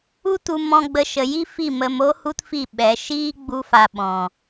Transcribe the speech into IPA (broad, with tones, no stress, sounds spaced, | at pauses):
u˦ t u˧ m ɔ̃˦ ɡ͡b ə˦ ʃ ə˧ j i˦ f i˦˨ m ə˧ m o˦ h u˦ t f i˦˨ ɓ ɛ˨˦ ʃ iː˦ ɡ͡b u˦ f a˧ ɓ ɔ̃˨